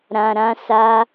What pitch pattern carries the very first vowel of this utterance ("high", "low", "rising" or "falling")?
low